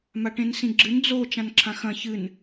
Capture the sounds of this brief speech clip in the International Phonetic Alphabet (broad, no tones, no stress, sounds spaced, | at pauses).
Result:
m a ʈ ẽ n s ĩ ɡ͡ǁ ɨ n d͡z o t͡ʃ ã n ǁʰ ã x ɐ̃ ç ɨ n